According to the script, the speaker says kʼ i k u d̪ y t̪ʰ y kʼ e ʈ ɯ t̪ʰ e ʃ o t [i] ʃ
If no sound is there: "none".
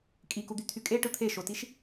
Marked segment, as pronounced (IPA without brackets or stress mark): i